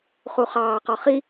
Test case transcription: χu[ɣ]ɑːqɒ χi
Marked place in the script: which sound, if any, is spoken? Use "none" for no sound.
χ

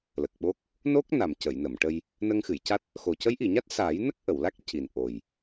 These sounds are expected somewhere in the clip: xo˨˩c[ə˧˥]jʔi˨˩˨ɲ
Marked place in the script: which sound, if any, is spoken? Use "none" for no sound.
ə˧˥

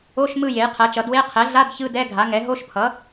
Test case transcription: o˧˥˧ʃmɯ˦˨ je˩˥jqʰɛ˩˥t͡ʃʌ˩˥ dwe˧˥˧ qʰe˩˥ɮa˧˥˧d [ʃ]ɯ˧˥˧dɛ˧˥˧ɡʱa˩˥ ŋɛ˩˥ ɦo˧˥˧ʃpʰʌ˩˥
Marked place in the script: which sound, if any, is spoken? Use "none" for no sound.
ç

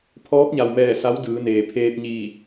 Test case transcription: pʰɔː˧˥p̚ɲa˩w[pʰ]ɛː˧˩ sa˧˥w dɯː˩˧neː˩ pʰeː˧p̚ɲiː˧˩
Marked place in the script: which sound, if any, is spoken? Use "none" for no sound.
m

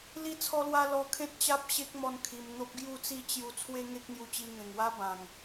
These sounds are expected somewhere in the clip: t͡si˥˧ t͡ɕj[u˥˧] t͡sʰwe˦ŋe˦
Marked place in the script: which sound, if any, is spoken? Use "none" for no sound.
u˧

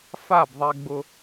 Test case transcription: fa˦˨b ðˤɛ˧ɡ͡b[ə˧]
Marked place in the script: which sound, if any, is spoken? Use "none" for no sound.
ʊ˧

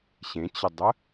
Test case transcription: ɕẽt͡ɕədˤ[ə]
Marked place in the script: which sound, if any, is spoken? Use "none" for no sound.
ə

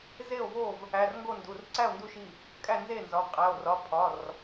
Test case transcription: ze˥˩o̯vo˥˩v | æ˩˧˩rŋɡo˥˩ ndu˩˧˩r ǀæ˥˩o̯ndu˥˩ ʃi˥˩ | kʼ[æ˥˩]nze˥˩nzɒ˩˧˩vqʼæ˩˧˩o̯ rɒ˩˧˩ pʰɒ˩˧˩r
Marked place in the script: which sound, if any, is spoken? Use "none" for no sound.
æ˥˩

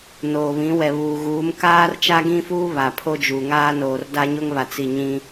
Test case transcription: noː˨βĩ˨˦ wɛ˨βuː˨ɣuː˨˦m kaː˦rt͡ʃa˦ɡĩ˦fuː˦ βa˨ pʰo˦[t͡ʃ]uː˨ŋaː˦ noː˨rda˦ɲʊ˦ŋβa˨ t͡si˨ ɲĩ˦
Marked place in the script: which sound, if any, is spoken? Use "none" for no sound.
d͡ʒ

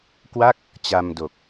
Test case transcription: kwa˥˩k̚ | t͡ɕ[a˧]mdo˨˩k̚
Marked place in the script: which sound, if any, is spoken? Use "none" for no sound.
a˧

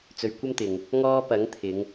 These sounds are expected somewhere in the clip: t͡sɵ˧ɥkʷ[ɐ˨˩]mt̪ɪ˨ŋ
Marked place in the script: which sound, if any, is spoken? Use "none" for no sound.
ɐ˥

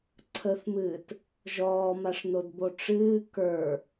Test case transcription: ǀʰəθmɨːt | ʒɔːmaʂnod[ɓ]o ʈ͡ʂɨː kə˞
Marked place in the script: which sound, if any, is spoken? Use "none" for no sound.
b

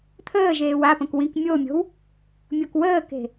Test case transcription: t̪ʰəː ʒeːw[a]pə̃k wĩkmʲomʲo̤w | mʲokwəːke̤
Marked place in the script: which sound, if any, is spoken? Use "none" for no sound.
a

